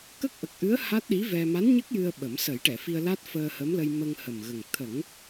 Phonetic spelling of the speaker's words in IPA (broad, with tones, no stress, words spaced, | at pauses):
kə˦˥k̚ʔə˨˩k̚ʔɨ˧˥ə̯ ha˦˥t̚ɗi˧˥ vɛ˧ ma˧˥nɲə˦˥k̚ jɨ˧ə̯ ɓə˨˩˦m sə˨˩˦jʈɛ˨˩˨fi˧ə̯la˦˥t̚ fəː˧hə˧˥mlə˧j mə˧ŋhə˨˩mɣə˨˩ŋ t̪ʰə˨˩˦ŋ